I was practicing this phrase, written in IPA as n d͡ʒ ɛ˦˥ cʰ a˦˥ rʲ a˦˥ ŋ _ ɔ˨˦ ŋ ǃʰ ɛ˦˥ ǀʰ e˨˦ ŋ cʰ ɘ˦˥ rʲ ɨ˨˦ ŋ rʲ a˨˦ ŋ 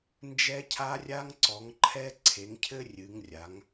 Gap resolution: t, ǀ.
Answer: ǀ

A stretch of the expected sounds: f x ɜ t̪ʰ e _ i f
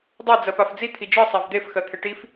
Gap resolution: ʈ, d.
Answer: ʈ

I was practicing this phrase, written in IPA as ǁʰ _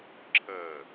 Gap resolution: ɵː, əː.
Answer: əː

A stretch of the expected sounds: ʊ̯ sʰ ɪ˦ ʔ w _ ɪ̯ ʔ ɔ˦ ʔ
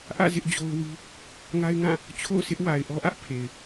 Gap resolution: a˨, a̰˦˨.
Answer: a˨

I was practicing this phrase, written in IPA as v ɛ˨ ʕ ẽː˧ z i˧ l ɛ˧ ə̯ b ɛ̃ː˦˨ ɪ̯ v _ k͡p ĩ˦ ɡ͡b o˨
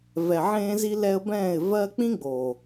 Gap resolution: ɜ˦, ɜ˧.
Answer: ɜ˦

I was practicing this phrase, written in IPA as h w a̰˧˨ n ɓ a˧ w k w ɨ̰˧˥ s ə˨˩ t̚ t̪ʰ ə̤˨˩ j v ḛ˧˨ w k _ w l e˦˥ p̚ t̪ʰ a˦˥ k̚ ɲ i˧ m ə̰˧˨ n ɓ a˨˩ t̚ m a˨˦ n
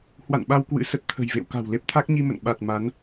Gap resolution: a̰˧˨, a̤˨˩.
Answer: a̤˨˩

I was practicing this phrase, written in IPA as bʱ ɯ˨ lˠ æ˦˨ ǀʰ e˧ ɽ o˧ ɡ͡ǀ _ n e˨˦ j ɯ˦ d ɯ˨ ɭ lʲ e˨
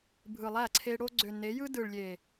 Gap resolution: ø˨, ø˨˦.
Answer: ø˨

